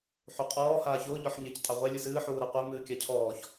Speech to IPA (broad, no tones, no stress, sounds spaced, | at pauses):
ħ u qʼ ɔː h aː ç ʊː ʎ ɔ ħ ɲ e c tʼ ɑ ʁʷ e lʲ ɨ s ɨː ħ uː ɾ a qʷ e m ɨː kʲ a cʰ ɔː ç